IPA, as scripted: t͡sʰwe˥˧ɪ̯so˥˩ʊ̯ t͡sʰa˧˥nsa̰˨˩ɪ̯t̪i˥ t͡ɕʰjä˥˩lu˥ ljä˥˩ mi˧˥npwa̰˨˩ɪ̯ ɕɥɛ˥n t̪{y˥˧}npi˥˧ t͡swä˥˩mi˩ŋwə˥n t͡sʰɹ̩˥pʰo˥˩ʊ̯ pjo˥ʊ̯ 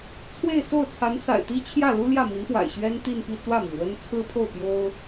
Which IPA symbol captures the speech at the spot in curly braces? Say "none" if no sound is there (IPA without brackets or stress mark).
i˥˧